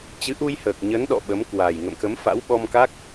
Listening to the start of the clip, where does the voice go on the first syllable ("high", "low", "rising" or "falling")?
rising